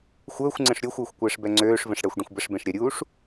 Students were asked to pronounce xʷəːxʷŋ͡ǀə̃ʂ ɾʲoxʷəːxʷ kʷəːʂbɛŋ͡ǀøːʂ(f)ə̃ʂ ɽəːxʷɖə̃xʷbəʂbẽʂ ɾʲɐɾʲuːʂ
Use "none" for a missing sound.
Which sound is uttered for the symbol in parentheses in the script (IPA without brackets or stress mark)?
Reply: v